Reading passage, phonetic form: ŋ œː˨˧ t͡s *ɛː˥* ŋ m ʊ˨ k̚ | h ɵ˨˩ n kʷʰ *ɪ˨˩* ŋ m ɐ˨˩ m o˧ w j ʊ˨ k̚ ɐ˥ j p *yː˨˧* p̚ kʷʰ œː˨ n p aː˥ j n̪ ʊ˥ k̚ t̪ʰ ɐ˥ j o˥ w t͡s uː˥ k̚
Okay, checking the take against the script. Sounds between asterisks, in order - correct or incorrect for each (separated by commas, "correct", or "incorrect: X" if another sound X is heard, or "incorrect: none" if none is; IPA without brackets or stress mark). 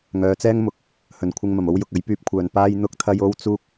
correct, incorrect: ɪ˨, incorrect: yː˧